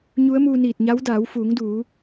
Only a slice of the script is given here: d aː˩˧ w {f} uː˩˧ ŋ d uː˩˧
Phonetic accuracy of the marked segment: correct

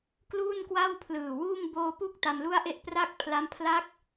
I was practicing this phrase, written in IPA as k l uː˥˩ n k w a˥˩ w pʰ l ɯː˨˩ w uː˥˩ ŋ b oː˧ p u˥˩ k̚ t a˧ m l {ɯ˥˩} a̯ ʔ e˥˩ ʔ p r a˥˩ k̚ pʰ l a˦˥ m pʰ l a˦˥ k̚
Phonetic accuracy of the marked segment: incorrect: u˥˩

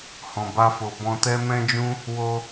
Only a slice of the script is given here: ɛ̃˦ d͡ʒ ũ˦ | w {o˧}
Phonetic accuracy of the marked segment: correct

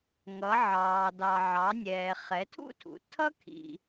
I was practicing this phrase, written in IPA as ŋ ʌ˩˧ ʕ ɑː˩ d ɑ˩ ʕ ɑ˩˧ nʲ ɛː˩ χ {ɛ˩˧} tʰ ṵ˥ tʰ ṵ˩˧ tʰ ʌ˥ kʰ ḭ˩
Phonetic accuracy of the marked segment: correct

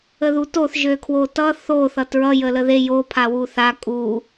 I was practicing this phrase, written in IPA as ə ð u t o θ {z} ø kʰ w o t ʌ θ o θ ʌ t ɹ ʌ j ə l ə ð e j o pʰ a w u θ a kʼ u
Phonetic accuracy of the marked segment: incorrect: ʒ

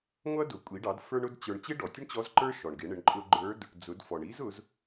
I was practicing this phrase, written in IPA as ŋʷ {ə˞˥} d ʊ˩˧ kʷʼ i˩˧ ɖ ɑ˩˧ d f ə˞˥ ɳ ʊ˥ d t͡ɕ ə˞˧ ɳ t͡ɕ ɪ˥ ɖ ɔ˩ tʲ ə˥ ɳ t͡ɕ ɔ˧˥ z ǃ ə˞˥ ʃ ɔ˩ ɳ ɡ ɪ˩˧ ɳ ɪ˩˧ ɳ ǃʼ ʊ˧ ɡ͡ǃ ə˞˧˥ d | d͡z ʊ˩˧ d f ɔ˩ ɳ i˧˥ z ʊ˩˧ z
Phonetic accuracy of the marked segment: incorrect: ʌ˥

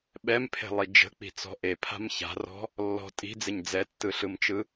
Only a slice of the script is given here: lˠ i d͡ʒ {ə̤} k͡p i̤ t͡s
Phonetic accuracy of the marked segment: correct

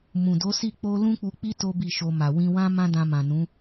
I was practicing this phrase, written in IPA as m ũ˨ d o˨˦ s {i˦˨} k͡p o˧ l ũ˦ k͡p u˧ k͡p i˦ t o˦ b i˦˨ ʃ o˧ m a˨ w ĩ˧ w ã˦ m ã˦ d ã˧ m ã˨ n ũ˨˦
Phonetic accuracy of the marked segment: correct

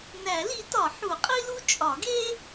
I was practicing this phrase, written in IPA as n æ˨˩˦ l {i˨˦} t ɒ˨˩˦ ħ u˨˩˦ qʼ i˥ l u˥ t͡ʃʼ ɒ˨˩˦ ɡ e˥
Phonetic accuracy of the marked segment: correct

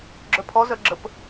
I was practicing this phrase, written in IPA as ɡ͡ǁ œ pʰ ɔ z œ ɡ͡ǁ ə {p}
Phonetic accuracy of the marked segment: correct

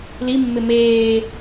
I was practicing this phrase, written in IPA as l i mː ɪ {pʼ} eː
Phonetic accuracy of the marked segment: incorrect: m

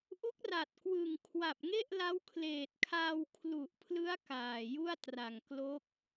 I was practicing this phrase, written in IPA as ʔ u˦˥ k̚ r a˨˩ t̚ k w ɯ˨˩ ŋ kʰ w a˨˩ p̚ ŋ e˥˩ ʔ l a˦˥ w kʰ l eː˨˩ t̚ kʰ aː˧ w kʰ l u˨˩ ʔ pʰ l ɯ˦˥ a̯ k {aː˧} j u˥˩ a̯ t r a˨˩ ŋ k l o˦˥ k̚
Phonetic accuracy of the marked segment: incorrect: aː˨˩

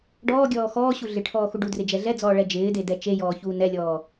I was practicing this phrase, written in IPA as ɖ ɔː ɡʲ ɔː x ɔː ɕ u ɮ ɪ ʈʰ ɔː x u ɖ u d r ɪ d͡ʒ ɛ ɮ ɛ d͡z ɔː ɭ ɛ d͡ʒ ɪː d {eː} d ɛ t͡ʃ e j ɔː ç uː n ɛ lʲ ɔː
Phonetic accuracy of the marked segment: incorrect: e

